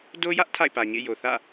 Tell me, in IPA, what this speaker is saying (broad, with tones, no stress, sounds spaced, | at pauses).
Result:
d o˦ j ä˦ ʔ tʰ a̰˦˨ ɪ̯ p ä˨ ɲ ḛ˦˨ j o˨ θ ä̰˦˨